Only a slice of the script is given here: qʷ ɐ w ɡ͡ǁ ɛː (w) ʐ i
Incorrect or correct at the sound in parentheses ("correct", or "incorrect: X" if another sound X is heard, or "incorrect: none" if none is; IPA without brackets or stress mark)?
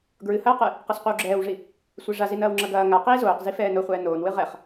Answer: correct